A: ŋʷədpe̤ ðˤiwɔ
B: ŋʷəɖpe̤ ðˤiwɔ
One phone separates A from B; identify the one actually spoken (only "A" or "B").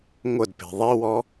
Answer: A